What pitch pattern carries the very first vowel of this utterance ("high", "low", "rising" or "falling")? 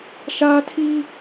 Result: high